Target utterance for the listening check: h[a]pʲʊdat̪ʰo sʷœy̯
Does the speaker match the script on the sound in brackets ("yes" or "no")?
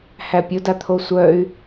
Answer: no